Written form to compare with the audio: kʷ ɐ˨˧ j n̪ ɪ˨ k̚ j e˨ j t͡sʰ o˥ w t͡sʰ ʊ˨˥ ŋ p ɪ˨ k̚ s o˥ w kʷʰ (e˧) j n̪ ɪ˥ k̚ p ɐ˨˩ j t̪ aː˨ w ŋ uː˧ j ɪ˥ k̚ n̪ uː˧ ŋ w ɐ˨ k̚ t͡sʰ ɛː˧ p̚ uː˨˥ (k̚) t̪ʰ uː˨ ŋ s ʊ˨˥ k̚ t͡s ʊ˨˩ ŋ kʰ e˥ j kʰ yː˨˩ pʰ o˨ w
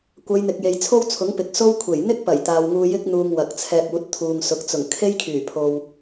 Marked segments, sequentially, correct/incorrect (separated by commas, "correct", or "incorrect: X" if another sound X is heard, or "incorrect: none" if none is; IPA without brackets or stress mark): incorrect: e˨˩, incorrect: t̚